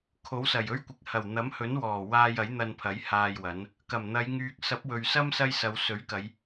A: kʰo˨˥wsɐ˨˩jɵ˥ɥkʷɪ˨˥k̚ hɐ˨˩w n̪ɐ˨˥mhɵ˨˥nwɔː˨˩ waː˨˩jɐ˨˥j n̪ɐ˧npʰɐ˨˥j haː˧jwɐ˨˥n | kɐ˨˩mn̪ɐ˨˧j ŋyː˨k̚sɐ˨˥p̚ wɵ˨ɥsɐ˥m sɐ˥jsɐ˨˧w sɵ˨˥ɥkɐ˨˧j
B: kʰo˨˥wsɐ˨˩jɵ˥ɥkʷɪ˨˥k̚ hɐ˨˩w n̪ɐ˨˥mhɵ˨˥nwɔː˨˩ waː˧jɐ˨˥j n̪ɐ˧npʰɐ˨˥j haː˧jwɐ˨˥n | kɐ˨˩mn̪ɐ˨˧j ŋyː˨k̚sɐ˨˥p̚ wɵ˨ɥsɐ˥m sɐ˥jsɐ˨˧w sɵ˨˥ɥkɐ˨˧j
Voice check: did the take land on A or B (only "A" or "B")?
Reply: B